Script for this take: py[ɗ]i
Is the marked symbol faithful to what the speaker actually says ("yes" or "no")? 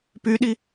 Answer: yes